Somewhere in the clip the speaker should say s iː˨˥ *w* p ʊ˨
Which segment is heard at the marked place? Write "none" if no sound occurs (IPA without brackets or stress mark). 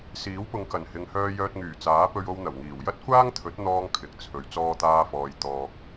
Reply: w